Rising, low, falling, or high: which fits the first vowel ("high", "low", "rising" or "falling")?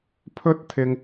high